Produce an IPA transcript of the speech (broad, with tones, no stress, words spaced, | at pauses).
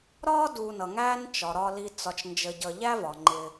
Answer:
ɾɒː˥du˨nʌ˩ŋæː˦n t͡ʃɒ˩ɾɒ˨li˨ t͡sɒ˨t͡ʃnd͡ʒə˨ɟʌ˨ ʎæ˦vɒ˩ŋ͡ǃɪː˨